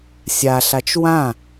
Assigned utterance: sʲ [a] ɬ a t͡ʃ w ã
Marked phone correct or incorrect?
correct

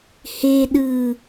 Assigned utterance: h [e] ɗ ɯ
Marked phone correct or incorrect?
correct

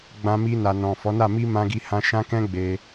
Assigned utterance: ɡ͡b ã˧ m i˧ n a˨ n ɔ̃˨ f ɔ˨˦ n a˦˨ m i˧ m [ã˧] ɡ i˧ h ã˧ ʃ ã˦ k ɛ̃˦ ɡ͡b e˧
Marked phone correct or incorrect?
correct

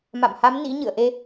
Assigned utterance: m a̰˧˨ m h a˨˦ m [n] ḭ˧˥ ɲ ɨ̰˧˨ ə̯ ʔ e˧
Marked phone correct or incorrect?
correct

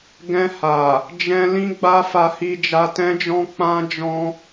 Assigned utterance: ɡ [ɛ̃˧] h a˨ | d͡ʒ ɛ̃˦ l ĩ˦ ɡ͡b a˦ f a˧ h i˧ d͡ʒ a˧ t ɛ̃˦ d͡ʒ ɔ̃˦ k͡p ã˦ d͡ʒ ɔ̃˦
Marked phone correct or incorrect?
correct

